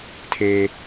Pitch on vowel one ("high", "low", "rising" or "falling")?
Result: low